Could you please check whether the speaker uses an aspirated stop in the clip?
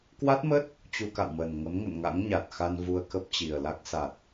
no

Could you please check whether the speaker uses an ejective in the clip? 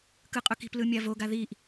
yes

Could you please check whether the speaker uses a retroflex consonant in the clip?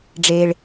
yes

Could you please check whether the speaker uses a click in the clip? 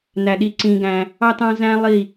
yes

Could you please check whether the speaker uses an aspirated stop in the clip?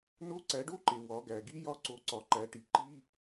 no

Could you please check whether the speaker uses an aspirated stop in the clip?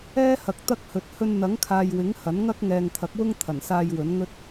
yes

